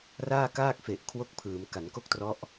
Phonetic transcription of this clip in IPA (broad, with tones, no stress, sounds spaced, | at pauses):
r aː˥˩ k aː˥˩ k̚ f e˨˩ ʔ kʰ w o˥˩ k̚ pʰ ɯː˩˦ m k a˩˦ n k o˥˩ k̚ t r ɔ˦˥ ʔ